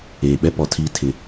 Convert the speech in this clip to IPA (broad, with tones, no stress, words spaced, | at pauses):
eː˨ɓɛ˦pɔ˨tʰi˦ tʰɪ˦